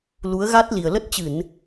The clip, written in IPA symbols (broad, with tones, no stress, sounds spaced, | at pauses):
l u˨˦ ə̯ ɣ a˦˥ t̚ l i˨˩ ə̯ l ə˦˥ t̚ t͡ɕ ɨ˧˩˨ n